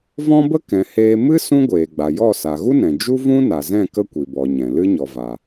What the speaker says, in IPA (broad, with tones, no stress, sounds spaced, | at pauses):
v ɔ̃˦ b ə˦ k ɛ̃˨ h eː˧ m ɨ˦ s ũ˦ ɡʷ eː˨ ɡ͡b a˨ j ɔ˦˨ s a˨ ɣ u˦ n ɛ̃˨ d͡ʒ u˦ v ũ˦ n a˨ z ɛ̃˦˨ k ə˦ kʷ i˨ b ɔ˨ ɲ ɛ̃˨ l ɨ˦ ɲ ɔ˨ v a˨